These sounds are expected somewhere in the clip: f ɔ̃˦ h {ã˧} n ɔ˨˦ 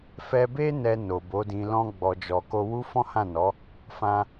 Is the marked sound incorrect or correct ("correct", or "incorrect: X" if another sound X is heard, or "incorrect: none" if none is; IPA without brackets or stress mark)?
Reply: incorrect: ã˦˨